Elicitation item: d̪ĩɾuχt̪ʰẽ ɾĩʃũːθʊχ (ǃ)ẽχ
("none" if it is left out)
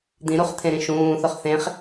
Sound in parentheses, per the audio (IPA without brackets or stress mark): θ